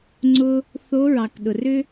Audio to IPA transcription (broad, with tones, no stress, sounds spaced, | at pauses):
ŋ͡ǀ ʊ˧ | θ o˧˥ ɹ ɑ˩ k ɗ ʊ˩ r ʏ˥